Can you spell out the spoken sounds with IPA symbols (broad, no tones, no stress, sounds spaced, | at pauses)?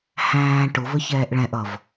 h æ̃ː ʈ ʊ v ə ç ɛː ʔ ɭ ɛ̃ ʔ ʌ v